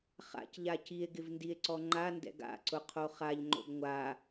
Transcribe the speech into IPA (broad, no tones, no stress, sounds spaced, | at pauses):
χ a̰ c ʎ a c i e̯ ɡ ɪ v n d i e̯ ǀ ɔ ŋ͡ǃ a n d ɛ̰ ɡ a̰ ǀ ʊ qʰ o χ a ʎ ŋ͡ǃ o̰ ɡ ŋʷ a